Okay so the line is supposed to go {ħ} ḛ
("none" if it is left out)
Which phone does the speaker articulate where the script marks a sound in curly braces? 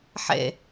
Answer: ħ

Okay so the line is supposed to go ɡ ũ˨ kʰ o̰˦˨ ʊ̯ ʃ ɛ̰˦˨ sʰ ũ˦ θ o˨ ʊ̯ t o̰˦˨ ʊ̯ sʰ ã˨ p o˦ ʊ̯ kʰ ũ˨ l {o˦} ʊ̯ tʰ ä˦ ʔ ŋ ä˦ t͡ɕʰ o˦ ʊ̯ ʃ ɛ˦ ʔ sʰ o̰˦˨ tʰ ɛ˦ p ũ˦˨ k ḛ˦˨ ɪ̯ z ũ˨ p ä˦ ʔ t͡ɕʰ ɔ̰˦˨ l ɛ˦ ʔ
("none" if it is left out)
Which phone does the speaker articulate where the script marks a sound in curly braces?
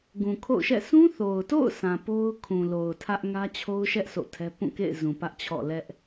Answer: o˨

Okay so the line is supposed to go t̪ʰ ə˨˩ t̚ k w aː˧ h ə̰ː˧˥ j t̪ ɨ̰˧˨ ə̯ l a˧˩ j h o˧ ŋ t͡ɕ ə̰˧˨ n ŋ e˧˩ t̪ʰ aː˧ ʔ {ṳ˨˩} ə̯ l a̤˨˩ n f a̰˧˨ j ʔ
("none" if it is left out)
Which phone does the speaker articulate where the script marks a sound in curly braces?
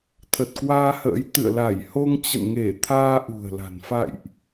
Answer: ṳ˨˩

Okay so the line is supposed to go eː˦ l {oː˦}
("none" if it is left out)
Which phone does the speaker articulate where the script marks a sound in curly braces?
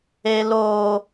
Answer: oː˦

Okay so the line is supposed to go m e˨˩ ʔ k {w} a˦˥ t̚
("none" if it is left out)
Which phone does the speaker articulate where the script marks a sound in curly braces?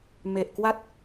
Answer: w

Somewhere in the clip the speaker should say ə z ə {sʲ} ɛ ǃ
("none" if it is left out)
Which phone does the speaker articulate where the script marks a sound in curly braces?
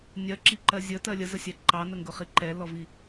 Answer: sʲ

